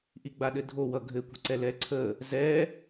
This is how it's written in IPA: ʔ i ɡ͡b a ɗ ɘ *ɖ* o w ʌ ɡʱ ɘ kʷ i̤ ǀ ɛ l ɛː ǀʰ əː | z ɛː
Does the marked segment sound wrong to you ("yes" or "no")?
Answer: yes